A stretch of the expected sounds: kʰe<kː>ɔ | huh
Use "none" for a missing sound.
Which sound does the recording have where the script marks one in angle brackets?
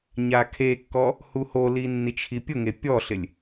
kː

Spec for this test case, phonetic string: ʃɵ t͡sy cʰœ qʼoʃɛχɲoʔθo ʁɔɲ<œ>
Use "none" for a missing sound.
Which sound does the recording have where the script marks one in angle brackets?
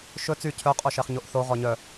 œ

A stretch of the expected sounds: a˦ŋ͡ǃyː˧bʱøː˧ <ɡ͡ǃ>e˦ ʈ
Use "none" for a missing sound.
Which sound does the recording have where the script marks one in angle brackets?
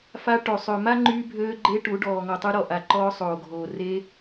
ɡ͡ǃ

